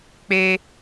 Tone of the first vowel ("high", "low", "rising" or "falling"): high